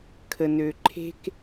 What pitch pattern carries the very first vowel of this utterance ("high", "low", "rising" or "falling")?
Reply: low